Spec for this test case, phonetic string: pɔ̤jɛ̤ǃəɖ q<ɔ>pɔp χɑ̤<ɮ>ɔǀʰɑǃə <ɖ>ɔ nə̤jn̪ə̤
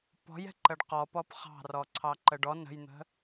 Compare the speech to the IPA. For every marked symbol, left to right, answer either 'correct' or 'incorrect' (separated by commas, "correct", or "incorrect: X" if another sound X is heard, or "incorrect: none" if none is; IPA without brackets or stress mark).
correct, incorrect: r, correct